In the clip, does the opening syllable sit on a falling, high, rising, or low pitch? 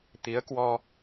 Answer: rising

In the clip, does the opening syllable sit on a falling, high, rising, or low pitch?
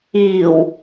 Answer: low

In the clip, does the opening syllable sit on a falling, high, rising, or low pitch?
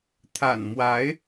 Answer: low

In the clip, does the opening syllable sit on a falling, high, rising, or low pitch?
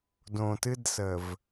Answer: low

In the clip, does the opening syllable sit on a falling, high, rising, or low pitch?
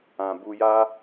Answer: low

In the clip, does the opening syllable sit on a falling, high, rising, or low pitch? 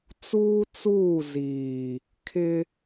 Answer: high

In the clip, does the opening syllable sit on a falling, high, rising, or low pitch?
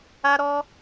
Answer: high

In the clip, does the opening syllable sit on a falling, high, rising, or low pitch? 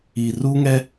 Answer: low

